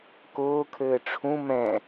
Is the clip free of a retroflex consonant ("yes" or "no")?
no